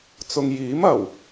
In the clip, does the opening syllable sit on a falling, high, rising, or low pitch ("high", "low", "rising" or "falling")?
low